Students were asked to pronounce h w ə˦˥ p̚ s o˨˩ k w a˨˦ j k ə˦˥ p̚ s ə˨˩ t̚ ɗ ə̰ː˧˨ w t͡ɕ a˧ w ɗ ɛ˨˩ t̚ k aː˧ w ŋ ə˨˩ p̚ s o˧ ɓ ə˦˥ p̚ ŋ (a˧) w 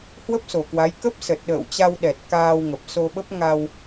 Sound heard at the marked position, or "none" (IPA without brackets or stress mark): a˧